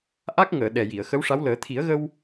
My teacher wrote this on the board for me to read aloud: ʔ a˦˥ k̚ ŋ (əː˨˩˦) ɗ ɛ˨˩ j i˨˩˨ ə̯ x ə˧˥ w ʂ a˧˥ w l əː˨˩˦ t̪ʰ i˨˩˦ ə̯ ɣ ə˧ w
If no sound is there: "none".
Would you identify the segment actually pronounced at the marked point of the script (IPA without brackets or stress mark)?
əː˨˩˨